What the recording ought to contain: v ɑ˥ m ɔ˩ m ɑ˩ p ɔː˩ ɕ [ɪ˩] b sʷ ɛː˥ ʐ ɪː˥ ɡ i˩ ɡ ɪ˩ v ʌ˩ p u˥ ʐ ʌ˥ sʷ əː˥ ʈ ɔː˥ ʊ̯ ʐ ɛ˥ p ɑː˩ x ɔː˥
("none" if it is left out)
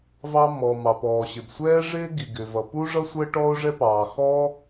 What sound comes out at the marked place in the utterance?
ɪ˩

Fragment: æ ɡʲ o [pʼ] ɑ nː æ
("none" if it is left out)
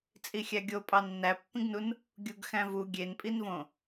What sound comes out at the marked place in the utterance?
pʼ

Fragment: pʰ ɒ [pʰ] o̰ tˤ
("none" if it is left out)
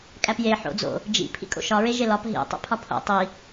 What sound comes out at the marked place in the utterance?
pʰ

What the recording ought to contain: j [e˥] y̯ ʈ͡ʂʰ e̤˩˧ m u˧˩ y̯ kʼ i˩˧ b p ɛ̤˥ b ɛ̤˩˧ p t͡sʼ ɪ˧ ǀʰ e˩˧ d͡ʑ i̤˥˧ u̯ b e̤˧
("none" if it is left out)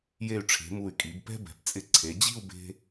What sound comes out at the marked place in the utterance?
e˧˩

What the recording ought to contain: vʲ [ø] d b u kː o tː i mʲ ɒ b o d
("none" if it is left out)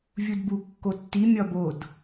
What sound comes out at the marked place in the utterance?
u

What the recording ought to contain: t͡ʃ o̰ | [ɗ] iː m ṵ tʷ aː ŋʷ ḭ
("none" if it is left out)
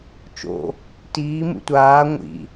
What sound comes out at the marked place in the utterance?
t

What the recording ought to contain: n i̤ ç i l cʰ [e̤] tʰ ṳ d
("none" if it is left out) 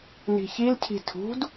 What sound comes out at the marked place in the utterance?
i̤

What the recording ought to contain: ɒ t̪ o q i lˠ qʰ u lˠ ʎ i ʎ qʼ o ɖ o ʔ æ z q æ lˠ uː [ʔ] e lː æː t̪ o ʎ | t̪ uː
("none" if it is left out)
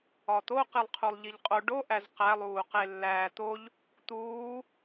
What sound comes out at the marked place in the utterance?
q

